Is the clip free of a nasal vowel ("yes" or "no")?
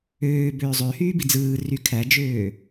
yes